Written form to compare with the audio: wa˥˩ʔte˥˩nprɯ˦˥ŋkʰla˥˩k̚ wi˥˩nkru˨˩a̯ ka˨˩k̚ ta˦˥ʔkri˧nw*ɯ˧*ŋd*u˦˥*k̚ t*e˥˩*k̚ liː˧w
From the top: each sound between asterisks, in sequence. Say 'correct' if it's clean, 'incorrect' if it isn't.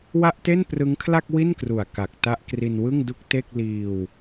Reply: incorrect, incorrect, correct

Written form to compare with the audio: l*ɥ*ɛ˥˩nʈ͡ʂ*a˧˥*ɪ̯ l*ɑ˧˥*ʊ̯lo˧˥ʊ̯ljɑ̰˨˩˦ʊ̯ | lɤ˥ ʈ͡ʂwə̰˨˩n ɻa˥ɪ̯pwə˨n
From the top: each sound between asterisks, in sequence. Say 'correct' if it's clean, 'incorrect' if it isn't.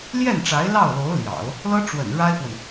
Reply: incorrect, correct, incorrect

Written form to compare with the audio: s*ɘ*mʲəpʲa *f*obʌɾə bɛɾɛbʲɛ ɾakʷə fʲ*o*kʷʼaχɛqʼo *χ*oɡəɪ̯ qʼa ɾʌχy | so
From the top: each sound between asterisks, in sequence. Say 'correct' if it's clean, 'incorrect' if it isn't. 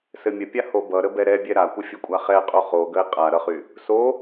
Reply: correct, incorrect, correct, correct

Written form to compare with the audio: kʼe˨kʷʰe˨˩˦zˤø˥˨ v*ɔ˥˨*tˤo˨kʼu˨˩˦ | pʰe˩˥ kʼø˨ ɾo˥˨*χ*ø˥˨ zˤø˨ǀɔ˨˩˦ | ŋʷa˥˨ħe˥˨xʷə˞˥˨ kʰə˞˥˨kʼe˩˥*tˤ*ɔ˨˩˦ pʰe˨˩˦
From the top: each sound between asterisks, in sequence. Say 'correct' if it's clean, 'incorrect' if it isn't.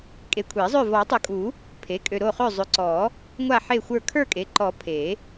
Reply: incorrect, correct, incorrect

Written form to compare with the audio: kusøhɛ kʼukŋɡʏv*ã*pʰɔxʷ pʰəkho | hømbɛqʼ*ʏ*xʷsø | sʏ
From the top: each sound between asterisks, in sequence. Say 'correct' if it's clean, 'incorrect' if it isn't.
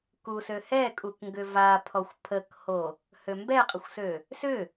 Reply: incorrect, incorrect

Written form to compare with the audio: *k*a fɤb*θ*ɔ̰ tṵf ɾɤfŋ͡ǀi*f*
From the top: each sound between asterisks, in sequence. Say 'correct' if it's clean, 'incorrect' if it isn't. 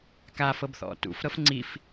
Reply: correct, correct, correct

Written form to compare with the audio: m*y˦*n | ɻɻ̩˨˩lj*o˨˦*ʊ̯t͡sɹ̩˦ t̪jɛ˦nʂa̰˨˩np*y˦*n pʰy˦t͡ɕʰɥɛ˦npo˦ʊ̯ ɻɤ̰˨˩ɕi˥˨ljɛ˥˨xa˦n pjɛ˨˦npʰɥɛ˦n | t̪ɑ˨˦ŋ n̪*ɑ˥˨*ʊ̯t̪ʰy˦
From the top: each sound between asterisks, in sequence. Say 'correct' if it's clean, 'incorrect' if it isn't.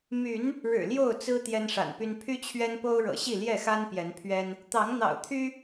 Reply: incorrect, incorrect, correct, incorrect

